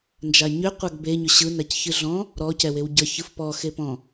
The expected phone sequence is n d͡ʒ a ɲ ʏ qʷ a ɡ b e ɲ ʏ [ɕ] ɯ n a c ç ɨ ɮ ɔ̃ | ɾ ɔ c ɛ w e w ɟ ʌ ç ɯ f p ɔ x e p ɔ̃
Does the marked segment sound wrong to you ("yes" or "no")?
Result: no